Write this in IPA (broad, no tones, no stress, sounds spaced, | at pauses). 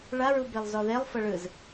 ɭ a ɹ u b e lˠ z ɔ ð e lˠ f ɤ ɭ ɯ z